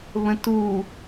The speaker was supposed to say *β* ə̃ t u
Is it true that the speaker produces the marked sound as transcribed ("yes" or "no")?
yes